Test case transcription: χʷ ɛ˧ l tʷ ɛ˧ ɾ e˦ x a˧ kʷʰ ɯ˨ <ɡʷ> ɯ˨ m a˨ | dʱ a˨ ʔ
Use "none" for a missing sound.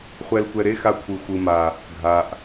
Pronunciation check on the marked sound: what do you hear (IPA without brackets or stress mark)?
xʷ